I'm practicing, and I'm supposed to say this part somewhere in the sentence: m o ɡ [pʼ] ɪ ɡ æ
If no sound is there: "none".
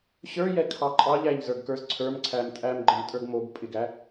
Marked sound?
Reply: pʼ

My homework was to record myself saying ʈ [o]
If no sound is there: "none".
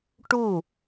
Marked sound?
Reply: u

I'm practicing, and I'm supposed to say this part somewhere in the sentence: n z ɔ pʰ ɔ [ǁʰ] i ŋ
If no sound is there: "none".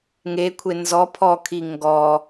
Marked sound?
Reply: kʰ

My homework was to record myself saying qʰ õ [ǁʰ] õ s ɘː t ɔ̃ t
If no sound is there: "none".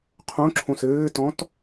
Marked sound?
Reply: ǁʰ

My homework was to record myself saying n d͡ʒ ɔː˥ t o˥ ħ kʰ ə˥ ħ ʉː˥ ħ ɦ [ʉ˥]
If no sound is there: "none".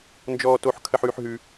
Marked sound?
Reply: ʉ˥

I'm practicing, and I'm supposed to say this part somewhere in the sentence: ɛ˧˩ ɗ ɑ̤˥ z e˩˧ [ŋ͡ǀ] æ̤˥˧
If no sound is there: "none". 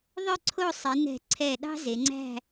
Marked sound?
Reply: ŋ͡ǀ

